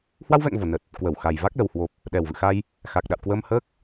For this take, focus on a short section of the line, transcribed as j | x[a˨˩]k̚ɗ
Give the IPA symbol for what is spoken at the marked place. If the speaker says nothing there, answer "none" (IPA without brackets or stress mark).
a˨˩